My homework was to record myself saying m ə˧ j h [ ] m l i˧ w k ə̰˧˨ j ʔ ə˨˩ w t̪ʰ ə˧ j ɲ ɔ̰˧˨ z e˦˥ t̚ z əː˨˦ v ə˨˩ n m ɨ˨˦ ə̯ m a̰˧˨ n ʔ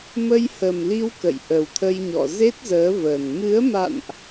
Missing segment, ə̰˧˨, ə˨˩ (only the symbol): ə˨˩